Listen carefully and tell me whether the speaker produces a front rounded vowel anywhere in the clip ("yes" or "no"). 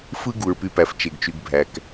yes